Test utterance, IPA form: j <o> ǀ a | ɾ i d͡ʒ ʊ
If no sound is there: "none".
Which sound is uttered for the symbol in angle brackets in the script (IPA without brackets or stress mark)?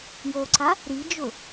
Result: o